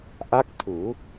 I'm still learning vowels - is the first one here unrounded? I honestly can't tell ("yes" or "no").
yes